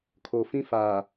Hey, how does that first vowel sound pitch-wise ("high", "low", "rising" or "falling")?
low